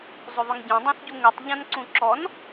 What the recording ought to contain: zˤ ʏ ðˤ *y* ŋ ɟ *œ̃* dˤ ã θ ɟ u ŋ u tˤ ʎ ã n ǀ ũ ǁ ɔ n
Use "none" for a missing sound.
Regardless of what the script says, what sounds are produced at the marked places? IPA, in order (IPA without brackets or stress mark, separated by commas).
ʏ, œ̃